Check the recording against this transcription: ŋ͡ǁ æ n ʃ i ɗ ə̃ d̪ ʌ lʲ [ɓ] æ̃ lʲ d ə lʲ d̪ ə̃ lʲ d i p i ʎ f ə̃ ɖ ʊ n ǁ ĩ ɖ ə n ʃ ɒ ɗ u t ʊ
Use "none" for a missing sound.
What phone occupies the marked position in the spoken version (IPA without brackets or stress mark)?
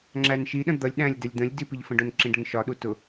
ɗ